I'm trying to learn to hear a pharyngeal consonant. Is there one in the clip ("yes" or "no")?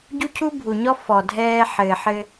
yes